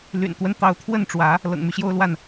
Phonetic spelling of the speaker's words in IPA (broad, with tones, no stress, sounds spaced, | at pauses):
l y̰˨˩ n t̪ w ə˦ n t̪ ɑ˨˦ ʊ̯ t̪ʰ w ə˥˨ n ʈ͡ʂ w ä˨˦ | l ɤ̰˨˩ ŋ m y˦ ɕ j o˦ ʊ̯ l w a˥˨ n